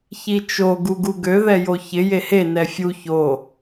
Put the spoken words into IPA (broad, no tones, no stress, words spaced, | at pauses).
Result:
çit͡ʃo ɡuɡuɡø ðɛjoçɪ jehe nɛfʲu ço